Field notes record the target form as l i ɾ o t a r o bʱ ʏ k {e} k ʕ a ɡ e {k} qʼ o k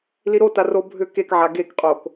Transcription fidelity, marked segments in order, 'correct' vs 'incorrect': correct, correct

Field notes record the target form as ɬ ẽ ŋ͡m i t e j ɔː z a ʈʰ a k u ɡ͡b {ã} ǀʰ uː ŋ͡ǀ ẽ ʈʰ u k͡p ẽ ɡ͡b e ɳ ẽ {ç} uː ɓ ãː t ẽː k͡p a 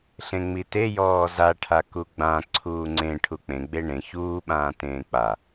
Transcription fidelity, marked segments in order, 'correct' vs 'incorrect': correct, correct

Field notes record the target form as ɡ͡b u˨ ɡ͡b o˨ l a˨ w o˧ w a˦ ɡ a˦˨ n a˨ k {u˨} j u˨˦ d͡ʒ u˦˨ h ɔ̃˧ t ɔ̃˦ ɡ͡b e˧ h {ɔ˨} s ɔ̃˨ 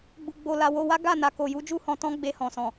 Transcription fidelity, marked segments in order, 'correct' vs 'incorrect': incorrect, incorrect

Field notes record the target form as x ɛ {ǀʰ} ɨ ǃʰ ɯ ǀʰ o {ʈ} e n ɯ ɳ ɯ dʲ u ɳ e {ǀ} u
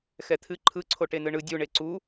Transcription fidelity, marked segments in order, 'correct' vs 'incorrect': incorrect, correct, correct

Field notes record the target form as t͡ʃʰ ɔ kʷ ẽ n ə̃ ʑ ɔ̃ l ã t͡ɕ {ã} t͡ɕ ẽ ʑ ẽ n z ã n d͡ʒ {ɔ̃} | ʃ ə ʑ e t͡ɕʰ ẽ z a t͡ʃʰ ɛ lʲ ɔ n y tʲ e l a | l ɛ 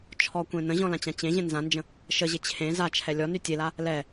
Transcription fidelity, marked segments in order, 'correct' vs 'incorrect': correct, incorrect

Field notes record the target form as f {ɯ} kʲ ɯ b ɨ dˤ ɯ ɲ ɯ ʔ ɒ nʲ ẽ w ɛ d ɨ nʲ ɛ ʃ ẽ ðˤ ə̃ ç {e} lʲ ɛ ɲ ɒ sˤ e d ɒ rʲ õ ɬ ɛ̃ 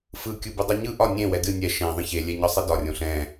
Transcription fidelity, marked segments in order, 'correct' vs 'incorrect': correct, correct

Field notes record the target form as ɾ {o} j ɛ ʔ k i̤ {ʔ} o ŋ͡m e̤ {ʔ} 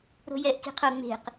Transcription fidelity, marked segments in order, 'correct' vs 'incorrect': incorrect, incorrect, incorrect

